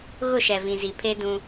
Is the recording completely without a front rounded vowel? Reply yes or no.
yes